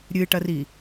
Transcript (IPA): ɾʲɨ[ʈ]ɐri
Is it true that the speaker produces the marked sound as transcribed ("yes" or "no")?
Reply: yes